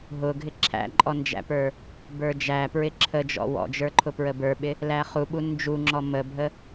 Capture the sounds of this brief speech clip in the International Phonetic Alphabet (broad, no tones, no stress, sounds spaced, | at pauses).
ɦ ʊ ɡʱ ɪ ǁʰ æ̰ ǃʼ ɔ n d͡ʒ æ̰ p ə˞ | b ə˞ d͡ʒ æ p ɹ ɪ ǁʰ ə d͡ʒ ɔ̰ w ɔ̰ d͡ʒ ə˞ ǃʰ ʊ p ɹ ə b ə˞ ɓ ɪ | l æ χ u ɓ u n d͡ʒ u ŋ͡ǁ ɔ m ə bʱ ə